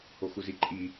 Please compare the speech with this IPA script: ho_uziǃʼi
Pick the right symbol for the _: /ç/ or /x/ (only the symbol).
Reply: x